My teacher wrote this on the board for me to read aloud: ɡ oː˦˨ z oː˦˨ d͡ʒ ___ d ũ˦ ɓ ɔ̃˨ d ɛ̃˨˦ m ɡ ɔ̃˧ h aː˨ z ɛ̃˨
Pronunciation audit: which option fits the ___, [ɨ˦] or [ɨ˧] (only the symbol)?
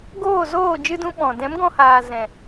ɨ˦